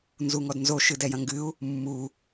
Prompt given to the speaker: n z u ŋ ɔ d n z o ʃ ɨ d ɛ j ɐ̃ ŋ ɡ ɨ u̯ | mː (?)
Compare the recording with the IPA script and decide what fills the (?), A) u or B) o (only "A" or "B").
A